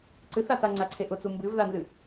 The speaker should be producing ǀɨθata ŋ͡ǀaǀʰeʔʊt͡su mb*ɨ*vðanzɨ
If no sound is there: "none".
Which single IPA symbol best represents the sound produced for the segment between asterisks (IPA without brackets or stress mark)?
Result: ɨ